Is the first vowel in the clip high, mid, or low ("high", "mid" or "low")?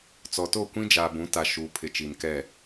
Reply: mid